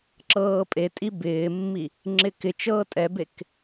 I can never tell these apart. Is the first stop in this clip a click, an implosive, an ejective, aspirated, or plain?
click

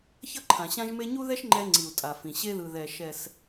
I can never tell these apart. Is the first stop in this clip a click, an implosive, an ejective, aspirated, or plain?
click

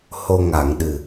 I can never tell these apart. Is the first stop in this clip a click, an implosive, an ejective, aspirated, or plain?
implosive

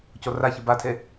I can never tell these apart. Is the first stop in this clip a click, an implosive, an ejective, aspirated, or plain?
plain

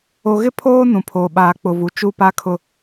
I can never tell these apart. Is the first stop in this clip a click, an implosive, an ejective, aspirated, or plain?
aspirated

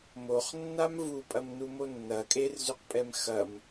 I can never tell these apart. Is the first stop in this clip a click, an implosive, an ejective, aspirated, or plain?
ejective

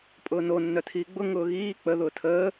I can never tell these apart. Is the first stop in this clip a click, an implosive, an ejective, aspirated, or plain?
ejective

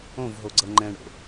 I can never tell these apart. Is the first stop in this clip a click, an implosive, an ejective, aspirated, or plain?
click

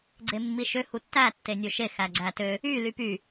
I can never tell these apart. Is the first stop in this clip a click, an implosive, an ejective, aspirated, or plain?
click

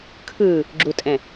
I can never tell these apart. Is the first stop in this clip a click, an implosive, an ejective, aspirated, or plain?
aspirated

